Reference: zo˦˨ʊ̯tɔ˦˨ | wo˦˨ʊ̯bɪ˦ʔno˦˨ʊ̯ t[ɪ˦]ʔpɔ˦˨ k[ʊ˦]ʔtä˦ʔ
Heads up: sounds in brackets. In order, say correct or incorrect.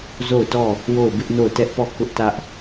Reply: incorrect, correct

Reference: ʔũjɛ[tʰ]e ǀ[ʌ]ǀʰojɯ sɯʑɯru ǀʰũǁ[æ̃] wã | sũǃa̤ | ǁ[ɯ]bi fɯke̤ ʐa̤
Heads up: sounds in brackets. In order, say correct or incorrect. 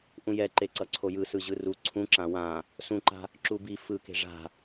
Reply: incorrect, correct, incorrect, incorrect

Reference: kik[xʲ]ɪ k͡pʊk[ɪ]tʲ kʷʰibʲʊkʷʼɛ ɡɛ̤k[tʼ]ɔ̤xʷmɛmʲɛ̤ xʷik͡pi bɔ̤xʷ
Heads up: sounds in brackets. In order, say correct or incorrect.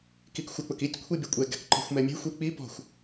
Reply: incorrect, incorrect, incorrect

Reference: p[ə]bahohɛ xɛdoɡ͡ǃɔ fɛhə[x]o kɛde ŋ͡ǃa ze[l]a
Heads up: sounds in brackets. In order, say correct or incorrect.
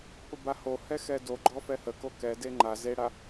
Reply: correct, incorrect, incorrect

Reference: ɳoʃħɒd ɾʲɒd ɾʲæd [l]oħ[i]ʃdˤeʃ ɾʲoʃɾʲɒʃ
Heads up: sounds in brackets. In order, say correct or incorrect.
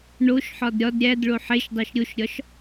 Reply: incorrect, incorrect

